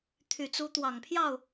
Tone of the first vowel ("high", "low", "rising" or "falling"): low